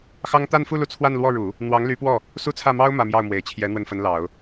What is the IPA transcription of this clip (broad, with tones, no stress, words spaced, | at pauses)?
xɑ˥ŋ t̪a˥˧nfu˥˧ lu˥˧t͡sʰwa˥˧nlwɔ˥˩ɻu˨˩˦ | n̪wɑ˧˥ŋ ly˧˥pwɔ˥˩ | su˥˧t͡sʰä˥˩mɑ˥ʊ̯ mä˥˧mjɑ˥˩ʊ̯mwe˨˩ɪ̯t͡ɕʰjɛ˧˥ n̪wə˥˩nfə˧˥nlɑ˨˩˦ʊ̯